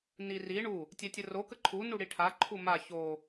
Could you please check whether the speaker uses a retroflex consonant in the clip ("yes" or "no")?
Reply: yes